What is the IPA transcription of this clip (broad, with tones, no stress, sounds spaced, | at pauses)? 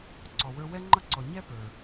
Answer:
ǀ ɔ˩ w ə˞˧ w ɛ˥ ŋ͡ǃ ʌ˥ ǀ ɔ˩ ɲ ɛ˥ p ə˞˩